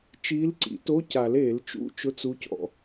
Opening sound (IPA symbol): t͡ʃ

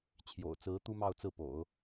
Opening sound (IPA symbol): t͡ɕʰ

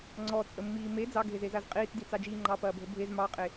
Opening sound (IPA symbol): ŋ͡ǀ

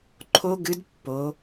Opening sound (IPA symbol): ǃʰ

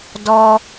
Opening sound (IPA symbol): d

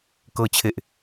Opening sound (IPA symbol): k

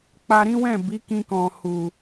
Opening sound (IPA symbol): k͡p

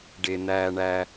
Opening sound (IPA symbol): ɖ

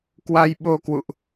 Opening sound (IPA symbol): k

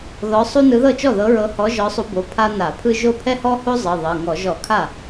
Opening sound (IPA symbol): ð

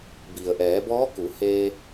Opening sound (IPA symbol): b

